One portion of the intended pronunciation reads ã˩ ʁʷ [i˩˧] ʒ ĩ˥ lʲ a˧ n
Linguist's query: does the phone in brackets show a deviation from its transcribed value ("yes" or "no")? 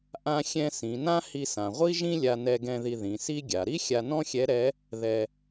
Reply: yes